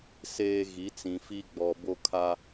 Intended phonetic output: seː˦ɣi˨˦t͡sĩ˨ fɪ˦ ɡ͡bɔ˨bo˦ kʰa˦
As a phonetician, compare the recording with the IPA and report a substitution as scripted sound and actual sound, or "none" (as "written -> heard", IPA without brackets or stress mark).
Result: ɪ˦ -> i˦